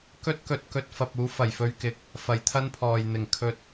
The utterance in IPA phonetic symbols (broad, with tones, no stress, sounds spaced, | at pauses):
k ɵ˥ t̚ k ɵ˧ t̚ k ɵ˧ t̚ f ɐ˧ p̚ uː˨˥ f ɐ˨˩ j f ɵ˧ ɥ k ɪ˨˥ k̚ | f ɐ˨˩ j t̪ʰ ɐ˥ n pʰ ɔː˨ j n̪ ɪ˨˩ ŋ kʰ ɵ˧ t̚